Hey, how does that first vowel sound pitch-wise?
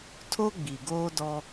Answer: high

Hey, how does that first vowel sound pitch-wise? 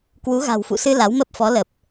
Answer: rising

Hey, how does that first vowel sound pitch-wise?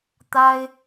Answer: high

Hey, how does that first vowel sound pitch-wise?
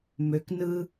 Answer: low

